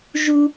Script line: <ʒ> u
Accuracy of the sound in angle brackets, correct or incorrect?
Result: correct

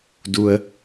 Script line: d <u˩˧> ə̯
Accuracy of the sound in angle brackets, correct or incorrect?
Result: incorrect: u˧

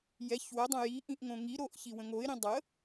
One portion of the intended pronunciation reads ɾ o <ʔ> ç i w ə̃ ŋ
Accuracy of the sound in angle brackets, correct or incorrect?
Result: correct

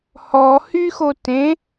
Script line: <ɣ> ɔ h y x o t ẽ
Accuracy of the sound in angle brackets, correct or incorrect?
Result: incorrect: h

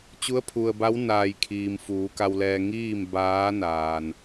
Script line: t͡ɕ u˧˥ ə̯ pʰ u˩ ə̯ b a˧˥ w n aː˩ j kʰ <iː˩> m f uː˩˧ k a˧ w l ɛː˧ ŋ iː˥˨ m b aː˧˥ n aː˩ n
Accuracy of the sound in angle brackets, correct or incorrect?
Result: correct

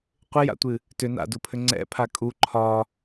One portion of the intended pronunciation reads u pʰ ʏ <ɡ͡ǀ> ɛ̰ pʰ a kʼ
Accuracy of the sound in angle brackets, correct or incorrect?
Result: incorrect: ŋ͡ǀ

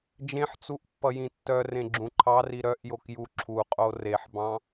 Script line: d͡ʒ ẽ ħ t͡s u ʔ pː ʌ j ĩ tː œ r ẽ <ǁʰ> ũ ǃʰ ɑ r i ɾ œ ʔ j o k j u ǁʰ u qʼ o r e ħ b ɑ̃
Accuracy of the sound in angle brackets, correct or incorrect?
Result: incorrect: ɡ͡ǁ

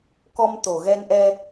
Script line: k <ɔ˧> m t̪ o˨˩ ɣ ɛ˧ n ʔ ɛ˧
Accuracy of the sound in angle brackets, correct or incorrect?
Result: correct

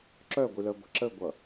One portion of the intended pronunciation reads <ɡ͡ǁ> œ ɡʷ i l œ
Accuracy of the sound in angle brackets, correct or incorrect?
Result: incorrect: ǁ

